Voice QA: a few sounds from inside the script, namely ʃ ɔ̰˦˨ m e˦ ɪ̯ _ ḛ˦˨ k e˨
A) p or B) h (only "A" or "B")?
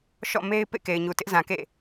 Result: A